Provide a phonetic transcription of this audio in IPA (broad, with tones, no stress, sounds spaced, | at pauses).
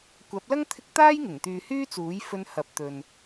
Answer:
kʷ ɐ˨˥ p̚ l ɐ˥ ŋ t̪ʰ ɪ˧ k̚ t̪ aː˥ j ŋ ɪ˨˩ ŋ t̪ yː˨ h yː˥ t͡s uː˨˥ j f ɵ˧ n h ɐ˨˥ p̚ t̪ ɵ˨ n